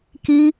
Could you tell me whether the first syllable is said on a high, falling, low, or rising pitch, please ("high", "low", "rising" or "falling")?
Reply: high